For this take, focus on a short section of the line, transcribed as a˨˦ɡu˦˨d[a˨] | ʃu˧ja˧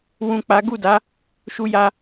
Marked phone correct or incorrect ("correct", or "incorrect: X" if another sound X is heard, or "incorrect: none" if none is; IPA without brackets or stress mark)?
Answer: incorrect: a˨˦